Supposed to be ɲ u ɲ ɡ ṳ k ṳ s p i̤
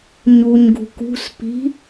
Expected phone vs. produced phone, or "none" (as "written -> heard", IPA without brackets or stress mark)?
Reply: none